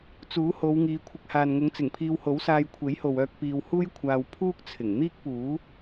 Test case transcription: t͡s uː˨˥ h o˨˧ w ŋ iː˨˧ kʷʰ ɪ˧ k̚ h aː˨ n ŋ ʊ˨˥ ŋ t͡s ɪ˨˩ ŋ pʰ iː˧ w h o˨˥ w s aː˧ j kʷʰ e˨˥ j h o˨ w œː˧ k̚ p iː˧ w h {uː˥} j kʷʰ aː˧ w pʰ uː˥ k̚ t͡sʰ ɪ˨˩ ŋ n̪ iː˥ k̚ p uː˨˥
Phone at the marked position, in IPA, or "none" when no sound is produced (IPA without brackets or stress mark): uː˥